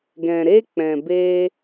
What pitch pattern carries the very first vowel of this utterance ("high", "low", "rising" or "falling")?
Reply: low